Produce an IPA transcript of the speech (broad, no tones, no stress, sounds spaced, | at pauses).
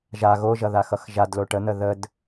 ʒ a ɣ o ʒ ʌ ð a x ʌ x ʒ a d l o ʈ ə n̪ ə ð ə d